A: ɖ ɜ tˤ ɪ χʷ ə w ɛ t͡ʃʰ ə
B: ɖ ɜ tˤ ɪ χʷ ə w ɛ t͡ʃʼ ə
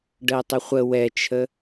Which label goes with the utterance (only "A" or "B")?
A